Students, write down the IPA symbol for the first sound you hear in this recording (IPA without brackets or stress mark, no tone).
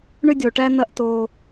ɳ